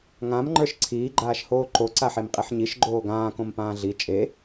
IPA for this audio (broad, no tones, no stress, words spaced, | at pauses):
ŋãmŋ͡ǃə˞ʃ ǀʰiːɡ͡ǃaːʃhoː ǃoǀaħemqʼiħ ɲiʃɡ͡ǃoː ɡãːkõm pãːɮi t͡ʃʼe